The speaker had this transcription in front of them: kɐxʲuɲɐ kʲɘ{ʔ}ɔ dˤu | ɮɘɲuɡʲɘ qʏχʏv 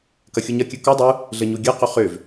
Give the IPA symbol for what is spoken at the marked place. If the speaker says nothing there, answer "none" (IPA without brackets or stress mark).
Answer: k